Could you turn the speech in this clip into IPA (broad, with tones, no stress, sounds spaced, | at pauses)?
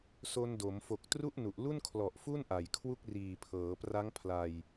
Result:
s o˧ n d o˩˦ m f o˨˩ k̚ t r u˥˩ ʔ n u˨˩ ʔ l u˥˩ n kʰ l ɔ˨˩ ʔ f u˥˩ n ʔ a˨˩ j kʰ w u˥˩ k̚ r iː˨˩ pʰ ɤː˩˦ p r a˦˥ ŋ pʰ l a˧ j